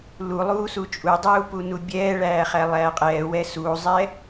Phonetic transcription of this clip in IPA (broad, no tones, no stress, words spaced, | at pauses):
lulˠuːsu t͡ʃʼudˤuːpunu bʲɛːɭæːχæ lˠæːqʼɛː wɛsuːzˤɛ